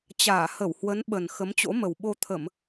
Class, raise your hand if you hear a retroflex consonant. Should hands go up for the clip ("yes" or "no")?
no